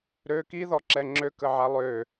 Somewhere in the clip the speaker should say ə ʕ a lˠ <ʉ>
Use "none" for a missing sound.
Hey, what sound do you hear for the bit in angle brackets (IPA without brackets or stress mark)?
ø